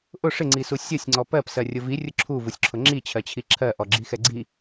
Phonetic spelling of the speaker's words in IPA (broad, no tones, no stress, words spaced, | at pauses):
ʔʊ ʂɪŋ͡ǀisu sʲʌsʲŋ͡ǀɔ pɜpsɜrʲʊ virʲʊ ǁʰuvusʲǁʰʊ ŋ͡ǁit͡ɕʰɜt͡ɕʰi ǁʰɜʔɔɡ͡ǁixɛ ɡ͡ǀi